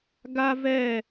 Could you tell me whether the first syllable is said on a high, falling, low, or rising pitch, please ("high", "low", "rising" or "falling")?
high